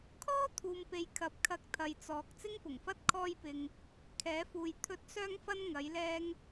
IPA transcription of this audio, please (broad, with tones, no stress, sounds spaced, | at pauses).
kʰ ɔː˥ t̪ʰ uː˨ m p e˨˧ j kʰ ɐ˨˥ p̚ kʰ ɐ˧ k̚ t̪ʰ ɐ˨ j t͡s ɔː˨ k̚ t͡s ɪ˥ ŋ p ʊ˨˩ ŋ f ɐ˥ t̚ kʰ ɔː˧ j p ɪ˨ ŋ | kʰ ɛː˨˥ f uː˨ j t̪ʰ ɵ˨˥ t̚ s œː˧ ŋ f ɐ˧ n ŋ ɐ˨˥ j l ɛː˥ ŋ